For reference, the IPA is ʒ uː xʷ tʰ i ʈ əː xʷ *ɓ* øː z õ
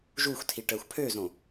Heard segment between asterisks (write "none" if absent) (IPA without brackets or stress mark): pʰ